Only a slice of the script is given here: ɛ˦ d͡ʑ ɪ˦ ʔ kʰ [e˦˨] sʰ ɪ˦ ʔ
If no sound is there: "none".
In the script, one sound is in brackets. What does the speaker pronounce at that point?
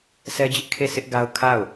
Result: e˦˨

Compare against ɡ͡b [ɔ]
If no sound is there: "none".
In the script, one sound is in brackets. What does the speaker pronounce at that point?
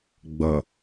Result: ʌ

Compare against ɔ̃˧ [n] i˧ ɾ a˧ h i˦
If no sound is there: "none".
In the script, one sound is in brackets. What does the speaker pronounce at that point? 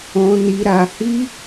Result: n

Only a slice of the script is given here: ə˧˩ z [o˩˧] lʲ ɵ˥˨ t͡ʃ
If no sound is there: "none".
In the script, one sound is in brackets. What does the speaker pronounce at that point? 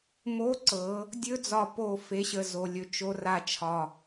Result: o˧˩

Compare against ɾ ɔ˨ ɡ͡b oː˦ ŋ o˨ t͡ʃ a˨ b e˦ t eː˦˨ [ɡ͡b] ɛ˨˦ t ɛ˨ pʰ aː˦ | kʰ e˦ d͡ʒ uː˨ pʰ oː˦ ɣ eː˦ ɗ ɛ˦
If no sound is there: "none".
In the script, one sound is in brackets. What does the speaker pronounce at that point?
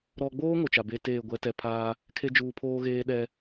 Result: ɡʷ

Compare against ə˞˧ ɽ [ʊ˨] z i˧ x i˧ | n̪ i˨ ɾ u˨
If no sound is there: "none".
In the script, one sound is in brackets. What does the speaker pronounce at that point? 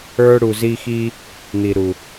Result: u˨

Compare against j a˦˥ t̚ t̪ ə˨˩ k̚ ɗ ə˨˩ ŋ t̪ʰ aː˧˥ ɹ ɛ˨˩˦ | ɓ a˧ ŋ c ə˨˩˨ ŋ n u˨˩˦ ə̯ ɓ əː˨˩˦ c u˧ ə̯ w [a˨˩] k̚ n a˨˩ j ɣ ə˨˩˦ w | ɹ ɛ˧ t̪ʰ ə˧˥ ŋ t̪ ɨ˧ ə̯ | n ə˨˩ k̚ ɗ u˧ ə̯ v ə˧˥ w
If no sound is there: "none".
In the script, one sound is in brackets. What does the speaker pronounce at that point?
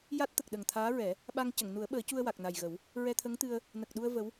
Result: a˨˩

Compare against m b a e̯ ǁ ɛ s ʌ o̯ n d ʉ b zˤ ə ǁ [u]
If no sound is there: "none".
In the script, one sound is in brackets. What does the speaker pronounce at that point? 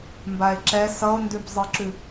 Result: ʉ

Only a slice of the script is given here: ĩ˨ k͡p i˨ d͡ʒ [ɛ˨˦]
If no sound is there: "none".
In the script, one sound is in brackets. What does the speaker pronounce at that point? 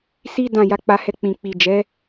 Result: ɛ˨˦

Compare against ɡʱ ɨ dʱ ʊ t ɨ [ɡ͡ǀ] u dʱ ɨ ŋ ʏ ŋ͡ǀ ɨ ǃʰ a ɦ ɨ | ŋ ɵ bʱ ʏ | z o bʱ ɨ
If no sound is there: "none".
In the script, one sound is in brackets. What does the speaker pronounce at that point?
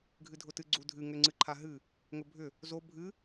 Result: ɡ͡ǀ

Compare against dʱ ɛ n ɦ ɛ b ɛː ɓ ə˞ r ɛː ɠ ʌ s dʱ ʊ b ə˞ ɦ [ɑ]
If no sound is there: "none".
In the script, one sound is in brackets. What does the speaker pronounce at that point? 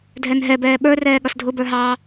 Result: ɑ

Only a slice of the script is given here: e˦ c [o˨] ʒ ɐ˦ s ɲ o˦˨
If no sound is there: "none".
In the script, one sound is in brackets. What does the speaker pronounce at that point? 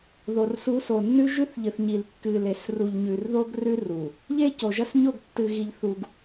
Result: o˨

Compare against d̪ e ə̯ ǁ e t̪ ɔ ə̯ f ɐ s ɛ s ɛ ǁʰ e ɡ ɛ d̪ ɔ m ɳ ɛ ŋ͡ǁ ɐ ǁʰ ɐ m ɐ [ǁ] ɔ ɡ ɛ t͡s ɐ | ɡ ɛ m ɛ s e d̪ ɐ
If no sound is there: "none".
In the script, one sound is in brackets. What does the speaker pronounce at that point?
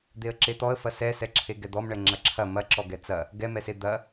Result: ǁ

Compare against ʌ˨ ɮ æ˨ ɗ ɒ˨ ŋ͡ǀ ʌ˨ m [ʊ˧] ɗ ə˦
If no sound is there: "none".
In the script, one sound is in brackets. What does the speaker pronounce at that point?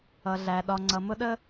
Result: ʊ˧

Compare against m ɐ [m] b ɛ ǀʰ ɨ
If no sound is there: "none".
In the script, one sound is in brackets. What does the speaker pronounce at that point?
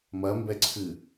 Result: m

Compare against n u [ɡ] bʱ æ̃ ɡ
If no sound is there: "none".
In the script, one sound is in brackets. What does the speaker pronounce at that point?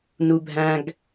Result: none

